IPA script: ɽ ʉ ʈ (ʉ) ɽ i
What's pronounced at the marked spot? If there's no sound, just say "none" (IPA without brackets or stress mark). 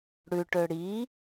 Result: ø